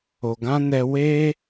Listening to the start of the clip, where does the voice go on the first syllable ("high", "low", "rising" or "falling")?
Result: low